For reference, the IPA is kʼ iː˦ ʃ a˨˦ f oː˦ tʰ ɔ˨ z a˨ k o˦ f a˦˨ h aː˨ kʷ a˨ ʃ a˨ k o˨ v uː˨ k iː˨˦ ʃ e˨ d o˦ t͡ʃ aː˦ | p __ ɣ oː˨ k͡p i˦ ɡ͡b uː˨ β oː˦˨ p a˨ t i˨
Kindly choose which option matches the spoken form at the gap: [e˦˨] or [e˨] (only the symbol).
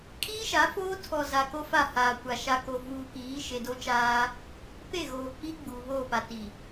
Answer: e˦˨